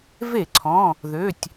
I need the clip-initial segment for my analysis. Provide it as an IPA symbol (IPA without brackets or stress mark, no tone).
v